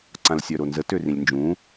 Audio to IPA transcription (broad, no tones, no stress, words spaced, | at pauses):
ǀãlsʲœɾonzə tørĩlʲnd͡ʒũ